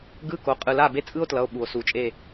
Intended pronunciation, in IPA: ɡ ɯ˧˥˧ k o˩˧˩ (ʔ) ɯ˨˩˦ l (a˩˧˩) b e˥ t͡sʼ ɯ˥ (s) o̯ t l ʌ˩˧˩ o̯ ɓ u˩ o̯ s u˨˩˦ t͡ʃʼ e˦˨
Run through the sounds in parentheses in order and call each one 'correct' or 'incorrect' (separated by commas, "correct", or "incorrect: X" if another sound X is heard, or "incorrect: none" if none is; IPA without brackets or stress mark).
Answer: incorrect: qʼ, correct, incorrect: none